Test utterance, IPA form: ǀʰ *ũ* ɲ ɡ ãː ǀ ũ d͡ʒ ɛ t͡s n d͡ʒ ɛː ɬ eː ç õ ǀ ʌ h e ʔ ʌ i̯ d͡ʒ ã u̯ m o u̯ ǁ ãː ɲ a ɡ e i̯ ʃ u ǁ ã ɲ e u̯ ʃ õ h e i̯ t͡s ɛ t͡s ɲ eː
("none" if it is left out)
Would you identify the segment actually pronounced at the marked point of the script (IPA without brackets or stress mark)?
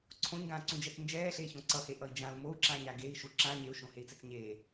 õ